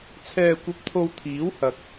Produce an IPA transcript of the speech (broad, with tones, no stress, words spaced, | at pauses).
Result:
t͡sʰɛː˧kʷɐ˧p̚t̪ʰo˧wt̪ʰiː˨˥w hɐ˨k̚